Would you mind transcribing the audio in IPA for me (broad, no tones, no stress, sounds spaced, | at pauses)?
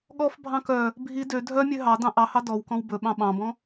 ɠ ɔ f bʱ ɑ̃ k œ | bʱ i d ø dʱ œ mʲ ø ɦ ɑ d ɑ̃ ʔ ɑ h ɑ d ɔ w k ɔ̃ w b ɵ ɓ ɑ̃ ɓ ɑ̃ b ɔ̃